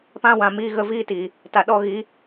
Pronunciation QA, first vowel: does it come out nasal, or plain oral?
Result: nasal